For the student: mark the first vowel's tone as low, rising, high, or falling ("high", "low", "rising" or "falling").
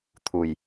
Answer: low